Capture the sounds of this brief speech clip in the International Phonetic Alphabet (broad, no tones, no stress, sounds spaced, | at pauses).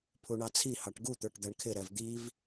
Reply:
pʰ u ɳ ɑ t͡sʰ i h ɑ ʈ ɡ u t̪ ə˞ ʈ d̪ æ ɳ kʰ ɪ ɾ ɛ v d̪ i v